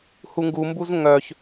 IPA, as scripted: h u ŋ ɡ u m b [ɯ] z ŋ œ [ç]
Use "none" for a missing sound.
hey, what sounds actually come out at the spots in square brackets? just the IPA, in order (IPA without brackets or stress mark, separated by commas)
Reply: u, ç